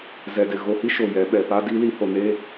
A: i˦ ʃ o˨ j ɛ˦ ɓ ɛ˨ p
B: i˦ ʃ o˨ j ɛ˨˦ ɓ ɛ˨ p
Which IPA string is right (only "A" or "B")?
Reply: B